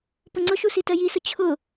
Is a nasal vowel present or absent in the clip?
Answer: absent